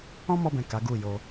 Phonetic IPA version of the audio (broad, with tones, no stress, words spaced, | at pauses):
ɔ̃˦mɔ˧bɛ̃˨ ka˨˦ɡu˦˨ jo˧